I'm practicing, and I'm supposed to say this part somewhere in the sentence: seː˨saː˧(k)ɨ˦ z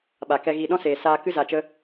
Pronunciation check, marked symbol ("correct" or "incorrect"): correct